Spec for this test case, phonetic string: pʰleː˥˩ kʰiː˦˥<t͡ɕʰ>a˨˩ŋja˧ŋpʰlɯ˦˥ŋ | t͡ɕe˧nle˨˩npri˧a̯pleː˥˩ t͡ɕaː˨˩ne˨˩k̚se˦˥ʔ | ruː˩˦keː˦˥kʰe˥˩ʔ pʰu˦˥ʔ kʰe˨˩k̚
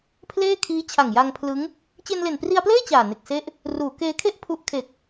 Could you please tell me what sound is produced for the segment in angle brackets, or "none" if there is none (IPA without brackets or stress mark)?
t͡ɕʰ